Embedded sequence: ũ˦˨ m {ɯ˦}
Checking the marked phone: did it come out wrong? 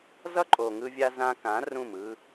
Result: no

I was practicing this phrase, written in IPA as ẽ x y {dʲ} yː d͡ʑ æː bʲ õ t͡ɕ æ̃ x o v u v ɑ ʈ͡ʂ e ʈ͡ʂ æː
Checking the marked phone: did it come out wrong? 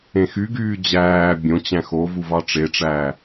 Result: yes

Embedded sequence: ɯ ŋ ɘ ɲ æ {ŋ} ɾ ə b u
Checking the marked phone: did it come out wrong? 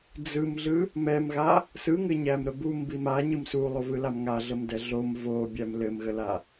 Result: yes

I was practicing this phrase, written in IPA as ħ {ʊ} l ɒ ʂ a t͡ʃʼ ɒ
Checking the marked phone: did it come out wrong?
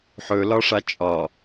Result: yes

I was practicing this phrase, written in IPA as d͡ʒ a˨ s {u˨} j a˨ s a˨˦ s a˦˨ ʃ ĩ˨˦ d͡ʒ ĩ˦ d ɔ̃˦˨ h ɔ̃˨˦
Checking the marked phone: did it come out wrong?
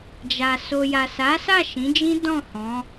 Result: yes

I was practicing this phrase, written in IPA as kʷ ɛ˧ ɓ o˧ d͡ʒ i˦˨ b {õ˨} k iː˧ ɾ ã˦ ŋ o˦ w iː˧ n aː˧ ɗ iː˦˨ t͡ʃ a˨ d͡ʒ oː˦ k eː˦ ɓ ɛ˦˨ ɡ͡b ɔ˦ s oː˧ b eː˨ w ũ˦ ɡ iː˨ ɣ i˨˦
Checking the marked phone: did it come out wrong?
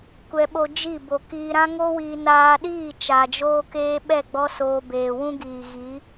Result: yes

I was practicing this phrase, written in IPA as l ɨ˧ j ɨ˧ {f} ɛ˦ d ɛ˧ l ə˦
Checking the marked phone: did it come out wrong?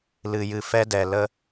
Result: no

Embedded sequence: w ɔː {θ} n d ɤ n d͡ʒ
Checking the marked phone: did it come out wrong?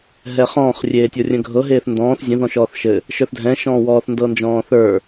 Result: no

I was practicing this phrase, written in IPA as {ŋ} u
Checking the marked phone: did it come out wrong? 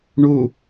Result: yes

